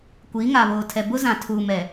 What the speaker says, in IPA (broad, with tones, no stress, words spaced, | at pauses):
kʷiː˨˦ŋa˨βoː˨tʰɛ˨ bʊ˦zã˨tʰuː˨mɛ˨